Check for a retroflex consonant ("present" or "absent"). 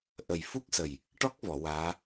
present